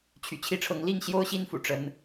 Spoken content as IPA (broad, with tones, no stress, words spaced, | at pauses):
t͡ɕʰy̰˨˩t͡ɕʰi˦ʈ͡ʂʰɤ˨˦ŋ li˥˨ŋɕjo˦ʊ̯ɕi˦nfṵ˨˩ ʈ͡ʂə˦n